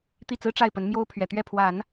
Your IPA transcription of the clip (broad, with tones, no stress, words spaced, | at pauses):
t̪i˥˩t͡sɹ̩˥ ʈ͡ʂa˥˩ɪ̯pə˧˥nmjo˥ʊ̯ pʰɥɛ˨˩ t̪ɥɛ˥˩pʰwa˨˩˦n